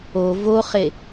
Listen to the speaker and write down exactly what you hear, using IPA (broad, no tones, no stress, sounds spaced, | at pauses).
o v o χ e